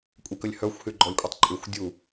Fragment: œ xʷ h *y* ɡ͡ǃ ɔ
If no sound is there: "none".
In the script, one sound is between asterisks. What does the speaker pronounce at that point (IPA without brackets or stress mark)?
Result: y